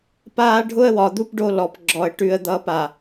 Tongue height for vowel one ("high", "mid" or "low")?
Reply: low